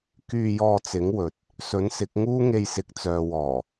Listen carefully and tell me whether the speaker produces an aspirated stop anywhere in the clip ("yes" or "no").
no